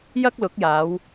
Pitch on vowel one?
high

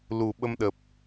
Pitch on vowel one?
low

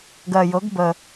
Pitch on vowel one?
low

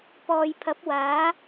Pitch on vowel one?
low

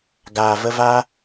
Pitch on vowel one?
low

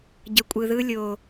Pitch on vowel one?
low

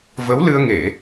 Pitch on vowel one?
rising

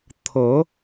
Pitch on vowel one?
rising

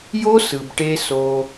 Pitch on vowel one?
high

